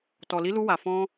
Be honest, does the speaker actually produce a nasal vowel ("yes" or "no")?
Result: yes